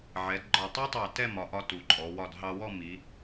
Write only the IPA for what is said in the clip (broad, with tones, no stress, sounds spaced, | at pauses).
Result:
ʕ ɛ˩˧ d ɡ͡ǃ ɒ˧˩ tˤ ɑ˥ tˤ ɑ˧˩ t ɛ˥˧ m ɒ˩˧ ʔ ɒ˧ t u˩˧ ǃʼ ɔ˩˧ w ɒ˧˩ d ɦ ɑ˧ w ɔ˥˧ m i˩˧